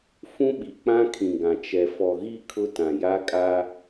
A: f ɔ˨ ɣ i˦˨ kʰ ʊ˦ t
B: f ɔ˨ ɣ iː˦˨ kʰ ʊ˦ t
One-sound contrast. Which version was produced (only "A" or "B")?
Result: A